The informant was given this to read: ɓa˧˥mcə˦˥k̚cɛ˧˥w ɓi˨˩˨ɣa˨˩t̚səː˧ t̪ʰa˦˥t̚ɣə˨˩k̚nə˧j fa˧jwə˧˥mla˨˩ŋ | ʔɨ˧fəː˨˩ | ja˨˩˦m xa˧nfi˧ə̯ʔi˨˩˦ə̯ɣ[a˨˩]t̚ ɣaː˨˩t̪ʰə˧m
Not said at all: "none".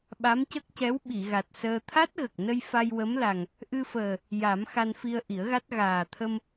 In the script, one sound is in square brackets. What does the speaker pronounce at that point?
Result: a˦˥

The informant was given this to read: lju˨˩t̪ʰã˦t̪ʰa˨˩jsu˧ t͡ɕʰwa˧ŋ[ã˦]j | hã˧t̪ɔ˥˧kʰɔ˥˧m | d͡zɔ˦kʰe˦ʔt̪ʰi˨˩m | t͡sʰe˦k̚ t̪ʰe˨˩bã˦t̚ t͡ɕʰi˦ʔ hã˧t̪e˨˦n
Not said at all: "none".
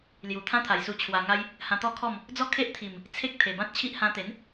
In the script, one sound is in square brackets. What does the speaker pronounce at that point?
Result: a˦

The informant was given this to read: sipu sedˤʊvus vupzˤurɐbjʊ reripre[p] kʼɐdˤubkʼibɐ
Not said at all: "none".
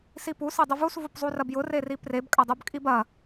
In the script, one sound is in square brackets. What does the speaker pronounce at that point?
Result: b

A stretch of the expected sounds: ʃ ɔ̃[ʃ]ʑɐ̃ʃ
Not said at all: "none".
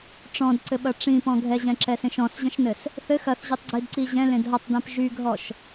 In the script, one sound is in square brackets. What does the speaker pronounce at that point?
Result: s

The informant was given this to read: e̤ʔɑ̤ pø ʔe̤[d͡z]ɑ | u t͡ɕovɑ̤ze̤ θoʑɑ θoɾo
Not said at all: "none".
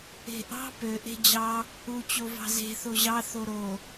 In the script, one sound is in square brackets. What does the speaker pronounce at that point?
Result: d͡ʑ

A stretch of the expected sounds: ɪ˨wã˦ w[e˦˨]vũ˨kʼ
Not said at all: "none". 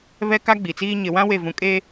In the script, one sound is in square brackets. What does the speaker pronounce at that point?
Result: e˦˨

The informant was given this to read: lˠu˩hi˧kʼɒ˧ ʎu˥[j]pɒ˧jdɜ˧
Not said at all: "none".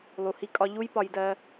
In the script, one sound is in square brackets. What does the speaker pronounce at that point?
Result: j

